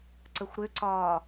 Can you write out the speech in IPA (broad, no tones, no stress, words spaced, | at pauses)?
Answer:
ǀəxʷɾʏǀɒː